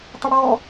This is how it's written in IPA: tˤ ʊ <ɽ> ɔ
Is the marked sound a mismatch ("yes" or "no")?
no